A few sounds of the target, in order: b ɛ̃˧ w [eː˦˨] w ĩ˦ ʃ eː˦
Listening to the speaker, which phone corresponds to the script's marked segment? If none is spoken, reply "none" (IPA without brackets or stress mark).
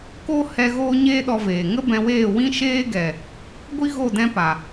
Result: eː˦˨